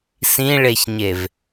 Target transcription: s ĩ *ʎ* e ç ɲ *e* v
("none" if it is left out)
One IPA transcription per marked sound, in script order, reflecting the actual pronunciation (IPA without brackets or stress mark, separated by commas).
ɭ, e